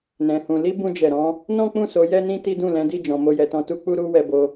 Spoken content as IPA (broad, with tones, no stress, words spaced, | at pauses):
nɛ̃˧hũ˧ li˦bũ˧d͡ʒɛ˨ɾɔ̃˧ | nɔ̃˦k͡pũ˦˨so˨˦ jɛ˦nĩ˦ti˦dũ˦˨ lɛ̃˨˦di˦˨ d͡ʒɔ̃˧mo˦jɛ˧tɔ̃˦ tu˦ k͡pu˦ɾu˦ wɛ˧bo˧